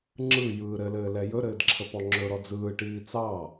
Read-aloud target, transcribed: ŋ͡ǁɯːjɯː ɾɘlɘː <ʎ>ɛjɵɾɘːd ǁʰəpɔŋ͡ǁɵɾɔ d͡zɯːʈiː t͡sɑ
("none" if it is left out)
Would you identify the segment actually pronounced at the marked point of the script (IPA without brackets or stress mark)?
l